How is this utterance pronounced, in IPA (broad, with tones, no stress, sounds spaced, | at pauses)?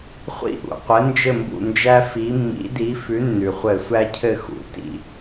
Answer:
χʷ ḭ˦˨ ʔ ṵ˩ qʷ ɘ˨˥ n d͡ʒ ɘ˦˨ m b ṵ˦˨ n d͡ʒ æ˦ f i˨˥ mː ḭ˨˥ d i˨˥ f ʉ˨˥ nː ʉ˩ χʷ ɘ˧˩˧ sʷ æ˦ cʰ ɘ˦˨ x ṵ˩ t ḭ˦˨